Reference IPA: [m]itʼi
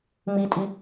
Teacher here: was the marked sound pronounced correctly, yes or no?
yes